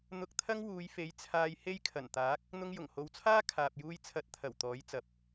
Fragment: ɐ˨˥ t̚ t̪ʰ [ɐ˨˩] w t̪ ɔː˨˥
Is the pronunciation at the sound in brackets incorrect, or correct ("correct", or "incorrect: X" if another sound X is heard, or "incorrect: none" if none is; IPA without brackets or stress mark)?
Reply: correct